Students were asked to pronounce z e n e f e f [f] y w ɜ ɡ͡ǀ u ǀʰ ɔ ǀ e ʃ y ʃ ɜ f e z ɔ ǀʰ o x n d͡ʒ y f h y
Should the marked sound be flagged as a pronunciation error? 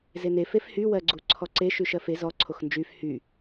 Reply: yes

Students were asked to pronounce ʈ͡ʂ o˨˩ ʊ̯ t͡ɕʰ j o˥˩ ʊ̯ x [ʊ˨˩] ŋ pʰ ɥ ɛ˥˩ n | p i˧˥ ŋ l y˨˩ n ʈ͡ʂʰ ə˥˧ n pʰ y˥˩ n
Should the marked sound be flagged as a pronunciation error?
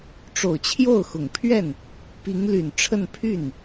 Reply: no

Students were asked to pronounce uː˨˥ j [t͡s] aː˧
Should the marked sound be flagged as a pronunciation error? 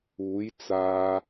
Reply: no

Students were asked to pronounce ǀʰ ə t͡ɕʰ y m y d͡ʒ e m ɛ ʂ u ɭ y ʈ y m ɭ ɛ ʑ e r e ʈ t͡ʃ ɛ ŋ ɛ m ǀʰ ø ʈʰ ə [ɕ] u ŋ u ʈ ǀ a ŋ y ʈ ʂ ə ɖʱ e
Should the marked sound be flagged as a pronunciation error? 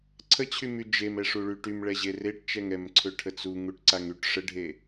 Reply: yes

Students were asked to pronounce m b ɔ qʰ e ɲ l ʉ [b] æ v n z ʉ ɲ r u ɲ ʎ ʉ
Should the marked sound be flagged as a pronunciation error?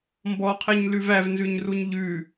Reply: yes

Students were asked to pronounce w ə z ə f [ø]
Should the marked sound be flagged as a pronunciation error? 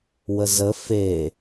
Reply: yes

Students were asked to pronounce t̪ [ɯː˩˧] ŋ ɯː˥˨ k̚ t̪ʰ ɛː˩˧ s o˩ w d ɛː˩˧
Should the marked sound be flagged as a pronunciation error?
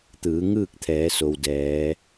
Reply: no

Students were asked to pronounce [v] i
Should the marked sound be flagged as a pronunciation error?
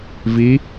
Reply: no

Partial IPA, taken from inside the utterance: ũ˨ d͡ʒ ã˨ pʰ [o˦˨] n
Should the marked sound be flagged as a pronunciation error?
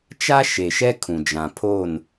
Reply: no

